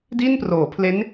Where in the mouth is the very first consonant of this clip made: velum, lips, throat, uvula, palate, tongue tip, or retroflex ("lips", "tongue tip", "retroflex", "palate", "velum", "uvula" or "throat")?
tongue tip